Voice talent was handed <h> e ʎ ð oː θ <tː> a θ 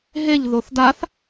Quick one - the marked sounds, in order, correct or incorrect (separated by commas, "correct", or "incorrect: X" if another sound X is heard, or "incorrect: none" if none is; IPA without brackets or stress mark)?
incorrect: ɦ, incorrect: d